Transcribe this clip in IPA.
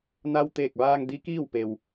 n a˧ w t̪ eː˧˩ k̚ ʋ aː˧ ŋ d i˧˥ k iː˥˨ w p e˩ w

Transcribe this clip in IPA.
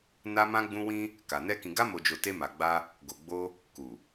n a˧ m ã˧ ɡ͡b ũ˧ w ĩ˦ | k a˨ n ɛ˧ k ĩ˨ ɡ a˧ m o˨ d͡ʒ o˨ t e˧ m a˨ ɡ͡b a˧ | ɡ o˨ ɡ͡b o˧ | k u˨

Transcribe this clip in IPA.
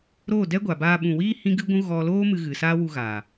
ɾ oː˦˨ d ɛ˦ ɡʷ a˨ b aː˧ ɓ ũ˨ w iː˦ h ĩ˦ ɡ ɨ˦ ɡʷ ũ˦ ɣ ɔ˧ l oː˦ m ɨ˧ ɣ ɨ˨ s aː˦ w u˧ ɣ a˨

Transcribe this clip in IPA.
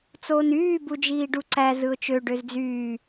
t͡s oː n yː b u d͡ʒ iː ɖ u ǀ æ z ɯ ʊ̯ t͡ʃ ø ɖ ø z d͡z yː

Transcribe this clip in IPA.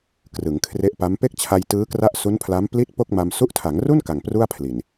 k r ɯ˩˦ ŋ kʰ r e˦˥ ʔ p a˦˥ m p e˥˩ k̚ t͡ɕʰ a˧ j t ɯː˦˥ k r a˦˥ ʔ s u˦˥ n pʰ l a˦˥ m p l i˥˩ t̚ p o˥˩ k̚ m a˧ m s u˦˥ ʔ tʰ a˩˦ ŋ r u˥˩ n k a˨˩ ŋ p r u˥˩ a̯ pʰ l i˨˩ n

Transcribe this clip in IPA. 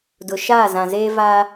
d ʊ˨ ʃ aː˦˨ z ã˨ z eː˦ v aː˦

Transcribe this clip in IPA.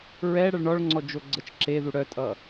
ɹ ɛ ɽ ʌ ɭ ɳ ɔ ɭ ŋ͡ǀ ɔ d͡ʒ o ɡ͡ǀ ə t͡ʃ ǁ e ð u ɽ œ tʼ ʌ

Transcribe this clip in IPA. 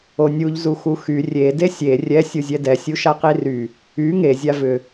o nʲ u ʎ z u x u x y rʲ e d e sʲ e rʲ ɛ sʲ u zʲ ɛ d ɛ sʲ u ʃ a q i r y | y ŋ e zʲ a v ʏ

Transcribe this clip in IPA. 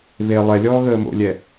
β e lˠ ɛ lʲ ɔː ɣ əː m o̰ lʲ ɛ

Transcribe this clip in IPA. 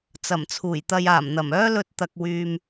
t͡s ɐ˨˩ m t͡sʰ uː˨˩ j t̪ ɐ˨ j aː˨˩ m n̪ ɐ˨˩ m œː˥ l ɵ˧ t̚ t̪ ɐ˨ k̚ w yː˨ m

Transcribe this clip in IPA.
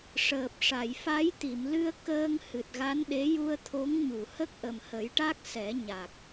ʂ əː˨˩ p̚ ʂ a˨˩˨ j f a˧˥ j t̪ i˨˩˨ m l ɨ˧ ə̯ k əː˧ ŋ h ɨ˨˩ t̚ ɣ a˧˥ n ɗ e˧˥ j u˧ ə̯ t̪ʰ o˧˥ ŋ ɲ u˨˩˨ h ə˦˥ k̚ ʔ ə˨˩ m h ə˨˩˦ j ʈ a˦˥ k̚ s ɛ˨˩˦ ɲ a˨˩ k̚

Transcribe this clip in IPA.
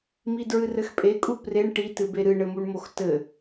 m i d ɹ ɨ r ɘ x pʼ e kʼ u p r e ɳ ʈ i t ɨ b e ɾ ɨ ɳ ɘ m u ɳ m o x t ɘ

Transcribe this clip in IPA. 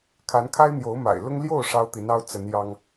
kʰ a˧˥ n kʰ a˥ ɪ̯ n̪ j o˧˥ ʊ̯ m a̰˨˩ ɪ̯ l ʊ˥ ŋ l j o˥˩ ʊ̯ ʂ ɑ˥ ʊ̯ t̪ i˧˥ n ɑ˥ ʊ̯ t͡s ə˧˥ n j ɑ˥ ŋ

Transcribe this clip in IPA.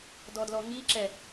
d ɔ d l ɔ ŋ i ǁ ɛ

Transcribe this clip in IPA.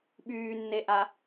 ɓ yː nː e ʔ a

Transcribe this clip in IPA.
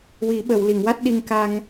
w i˨˩˦ ɓ ə˨˩˨ w l i˨˩˨ ŋ w a˦˥ t̚ ɗ i˧ ŋ k a˧ ŋ

